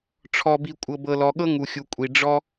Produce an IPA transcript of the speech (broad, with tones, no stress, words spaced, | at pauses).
ʈ͡ʂʰɔ˧bi˧ kʷʼɤ˧bɤ˧lɔ˧ɠɤ˥ ŋu˧xʲu˧kʷʼi˧ ɖ͡ʐɔ˥